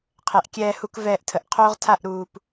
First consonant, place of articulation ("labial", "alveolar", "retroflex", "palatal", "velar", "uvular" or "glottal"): uvular